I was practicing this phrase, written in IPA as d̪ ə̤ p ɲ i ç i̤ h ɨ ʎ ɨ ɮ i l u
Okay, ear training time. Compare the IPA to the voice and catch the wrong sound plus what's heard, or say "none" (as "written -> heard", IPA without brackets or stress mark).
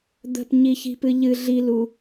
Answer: h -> p